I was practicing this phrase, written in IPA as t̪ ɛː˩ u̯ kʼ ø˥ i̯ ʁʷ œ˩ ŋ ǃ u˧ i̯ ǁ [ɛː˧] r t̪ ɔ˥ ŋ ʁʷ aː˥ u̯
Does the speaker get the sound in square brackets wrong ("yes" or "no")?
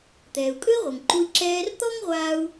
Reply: no